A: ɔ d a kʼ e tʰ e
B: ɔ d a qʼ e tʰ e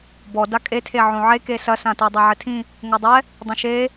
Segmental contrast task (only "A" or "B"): A